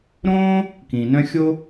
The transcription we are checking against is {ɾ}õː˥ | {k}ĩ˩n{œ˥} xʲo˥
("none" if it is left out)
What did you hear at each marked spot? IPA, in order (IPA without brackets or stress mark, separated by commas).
ɾ, k, œ̃˥